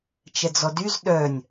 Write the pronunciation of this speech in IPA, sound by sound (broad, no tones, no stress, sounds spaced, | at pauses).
t͡ʃ ɛ d͡z ɔ d y z ɗ œ nʲ